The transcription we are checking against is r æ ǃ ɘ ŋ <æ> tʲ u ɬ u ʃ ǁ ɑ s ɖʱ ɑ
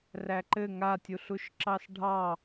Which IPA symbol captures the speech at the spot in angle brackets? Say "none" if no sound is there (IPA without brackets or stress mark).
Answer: a